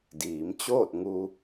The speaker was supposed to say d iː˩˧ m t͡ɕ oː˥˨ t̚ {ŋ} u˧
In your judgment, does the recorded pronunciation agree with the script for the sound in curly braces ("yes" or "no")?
yes